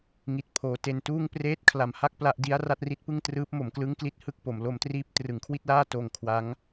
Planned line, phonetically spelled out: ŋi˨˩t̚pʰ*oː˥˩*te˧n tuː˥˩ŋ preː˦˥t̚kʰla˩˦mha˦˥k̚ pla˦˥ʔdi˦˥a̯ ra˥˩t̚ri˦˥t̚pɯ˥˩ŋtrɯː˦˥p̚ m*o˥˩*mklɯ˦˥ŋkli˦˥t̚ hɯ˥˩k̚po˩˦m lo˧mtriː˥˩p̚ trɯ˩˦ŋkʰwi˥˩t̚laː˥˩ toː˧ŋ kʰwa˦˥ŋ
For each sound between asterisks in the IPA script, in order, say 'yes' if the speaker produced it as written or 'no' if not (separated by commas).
no, no